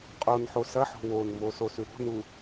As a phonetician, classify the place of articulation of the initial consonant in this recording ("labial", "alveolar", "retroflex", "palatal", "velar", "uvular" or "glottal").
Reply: uvular